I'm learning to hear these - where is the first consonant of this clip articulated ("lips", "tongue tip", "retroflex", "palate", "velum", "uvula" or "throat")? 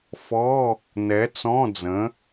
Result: lips